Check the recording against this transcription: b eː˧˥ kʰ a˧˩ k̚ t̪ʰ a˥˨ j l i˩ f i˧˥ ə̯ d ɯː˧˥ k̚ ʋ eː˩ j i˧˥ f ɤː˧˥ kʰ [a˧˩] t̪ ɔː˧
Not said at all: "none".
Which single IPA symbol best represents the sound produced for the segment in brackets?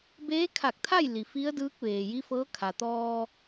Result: a˩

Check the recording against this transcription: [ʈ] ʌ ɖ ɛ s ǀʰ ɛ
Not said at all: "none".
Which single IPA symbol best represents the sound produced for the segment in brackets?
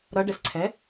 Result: ɾ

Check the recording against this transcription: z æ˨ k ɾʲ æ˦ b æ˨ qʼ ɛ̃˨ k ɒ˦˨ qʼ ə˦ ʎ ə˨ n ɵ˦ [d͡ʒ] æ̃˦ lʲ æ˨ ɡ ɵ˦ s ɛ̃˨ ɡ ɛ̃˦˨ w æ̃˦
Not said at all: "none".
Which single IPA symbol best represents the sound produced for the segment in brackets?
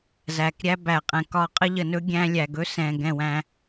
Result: ɡʲ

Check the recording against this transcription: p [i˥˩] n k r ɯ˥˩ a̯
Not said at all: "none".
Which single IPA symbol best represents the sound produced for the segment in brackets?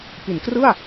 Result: i˩˦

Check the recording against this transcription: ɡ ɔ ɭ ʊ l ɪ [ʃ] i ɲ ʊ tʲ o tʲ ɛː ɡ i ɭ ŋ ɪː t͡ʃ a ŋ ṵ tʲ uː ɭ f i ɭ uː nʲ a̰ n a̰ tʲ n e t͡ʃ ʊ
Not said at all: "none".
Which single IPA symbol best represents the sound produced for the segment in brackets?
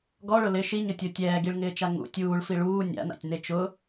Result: ʃ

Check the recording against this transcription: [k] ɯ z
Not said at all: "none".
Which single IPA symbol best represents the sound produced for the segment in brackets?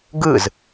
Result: ɡ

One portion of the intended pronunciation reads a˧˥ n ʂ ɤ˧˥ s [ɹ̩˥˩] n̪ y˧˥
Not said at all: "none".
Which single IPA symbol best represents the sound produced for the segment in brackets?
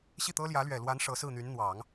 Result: ɹ̩˥˩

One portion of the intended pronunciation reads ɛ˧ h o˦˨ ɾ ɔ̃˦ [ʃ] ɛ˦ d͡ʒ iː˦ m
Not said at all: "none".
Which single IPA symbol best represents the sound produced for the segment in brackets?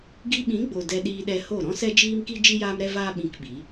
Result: s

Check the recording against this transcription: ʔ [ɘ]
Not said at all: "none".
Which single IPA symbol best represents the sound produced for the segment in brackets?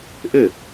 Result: ɘ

